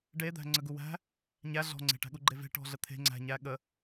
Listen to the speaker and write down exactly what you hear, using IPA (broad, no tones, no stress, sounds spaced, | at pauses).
ɖ e d̪ æ̤ ŋ͡ǀ ə ɡ u w æ̤ | ɲ æ ɮ ɔ̤ ŋ͡ǀ e̤ ʈ æ̤ ɠ u ɡ͡ǃ e v e̤ ʈ ɔ̤ ɮ ə t̪ʰ e̤ ŋ͡ǀ æ̤ ɲ æ ɠ ə